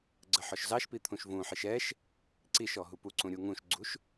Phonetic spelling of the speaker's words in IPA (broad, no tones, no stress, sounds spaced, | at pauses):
ɡ͡ǀ ə ħ ɔ ʃ z ɑ ʃ p i t̪ʰ ũ ʃ v ũ ħ i ʃ ɛ ʃ | ǀ i ʃ ɔ ɦ u p u ǀ ũ ɾʲ u ŋ ũ ʃ ɡ͡ǀ u ʃ